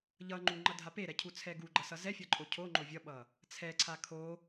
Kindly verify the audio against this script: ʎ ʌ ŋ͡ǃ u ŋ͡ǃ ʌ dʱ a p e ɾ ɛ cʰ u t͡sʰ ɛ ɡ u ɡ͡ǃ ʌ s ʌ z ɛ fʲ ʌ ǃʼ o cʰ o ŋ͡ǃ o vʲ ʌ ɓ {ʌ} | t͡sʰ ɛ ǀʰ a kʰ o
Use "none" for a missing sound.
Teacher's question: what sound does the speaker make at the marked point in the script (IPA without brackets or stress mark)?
ʌ